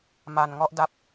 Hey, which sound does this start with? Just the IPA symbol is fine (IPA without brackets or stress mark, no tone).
m